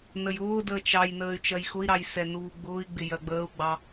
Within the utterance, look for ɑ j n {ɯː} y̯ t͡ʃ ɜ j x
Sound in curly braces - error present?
yes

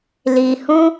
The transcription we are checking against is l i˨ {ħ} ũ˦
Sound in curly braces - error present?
yes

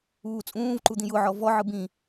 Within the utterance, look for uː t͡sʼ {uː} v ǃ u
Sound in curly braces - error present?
yes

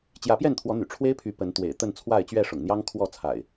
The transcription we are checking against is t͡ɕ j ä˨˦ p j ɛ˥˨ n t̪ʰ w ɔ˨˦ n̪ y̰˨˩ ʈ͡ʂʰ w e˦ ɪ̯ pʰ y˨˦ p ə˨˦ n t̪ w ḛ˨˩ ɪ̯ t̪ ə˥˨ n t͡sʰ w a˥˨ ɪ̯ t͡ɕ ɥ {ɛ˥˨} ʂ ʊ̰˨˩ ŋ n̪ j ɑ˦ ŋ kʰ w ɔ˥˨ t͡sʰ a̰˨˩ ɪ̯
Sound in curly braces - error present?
no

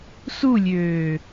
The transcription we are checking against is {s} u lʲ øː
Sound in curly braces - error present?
no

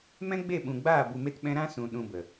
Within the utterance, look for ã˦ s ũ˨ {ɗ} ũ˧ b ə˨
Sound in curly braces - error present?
no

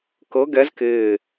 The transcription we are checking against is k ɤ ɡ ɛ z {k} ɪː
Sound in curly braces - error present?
no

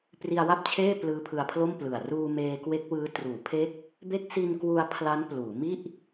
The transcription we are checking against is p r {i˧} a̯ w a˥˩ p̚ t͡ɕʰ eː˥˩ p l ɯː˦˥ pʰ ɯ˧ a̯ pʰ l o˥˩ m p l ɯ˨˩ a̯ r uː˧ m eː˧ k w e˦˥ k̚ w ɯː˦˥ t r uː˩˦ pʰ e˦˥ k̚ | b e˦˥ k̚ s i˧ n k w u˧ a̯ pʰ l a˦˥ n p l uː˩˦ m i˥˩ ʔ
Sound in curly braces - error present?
no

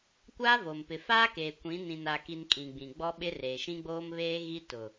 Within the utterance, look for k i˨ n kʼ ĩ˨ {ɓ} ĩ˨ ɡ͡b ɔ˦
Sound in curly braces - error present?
yes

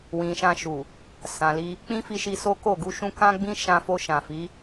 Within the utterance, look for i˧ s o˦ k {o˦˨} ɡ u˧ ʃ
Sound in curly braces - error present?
no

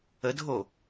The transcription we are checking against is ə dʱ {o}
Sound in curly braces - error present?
no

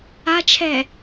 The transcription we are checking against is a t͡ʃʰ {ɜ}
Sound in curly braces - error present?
yes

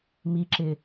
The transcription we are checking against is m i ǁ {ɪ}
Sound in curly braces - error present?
no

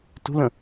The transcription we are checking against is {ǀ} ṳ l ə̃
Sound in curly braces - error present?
yes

